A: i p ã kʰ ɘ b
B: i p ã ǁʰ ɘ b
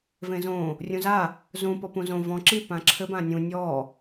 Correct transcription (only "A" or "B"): B